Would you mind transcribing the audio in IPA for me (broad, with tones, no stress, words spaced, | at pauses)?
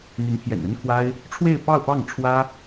n̪y˧˥npʰjɛ̰˨˩nə˥nkʰwa˥ɪ̯ | ʈ͡ʂʰwe˥˧ɪ̯pɑ˥˧ʊ̯pɑ˥˩ŋʈ͡ʂʰwä˥